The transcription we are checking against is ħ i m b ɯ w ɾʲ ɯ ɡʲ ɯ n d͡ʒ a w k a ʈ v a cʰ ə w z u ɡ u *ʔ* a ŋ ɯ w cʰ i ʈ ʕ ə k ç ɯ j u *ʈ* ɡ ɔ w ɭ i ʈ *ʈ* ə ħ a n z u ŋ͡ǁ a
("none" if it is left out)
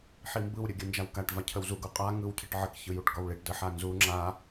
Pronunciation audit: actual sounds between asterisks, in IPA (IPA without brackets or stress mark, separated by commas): qʼ, ʈ, d